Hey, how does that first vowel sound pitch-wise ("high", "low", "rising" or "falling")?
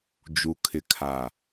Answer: low